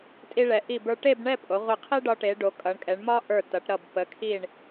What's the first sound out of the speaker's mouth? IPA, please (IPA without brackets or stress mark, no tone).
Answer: tʼ